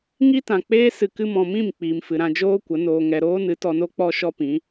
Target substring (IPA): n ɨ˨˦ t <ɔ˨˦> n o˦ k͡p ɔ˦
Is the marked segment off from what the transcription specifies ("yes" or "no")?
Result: yes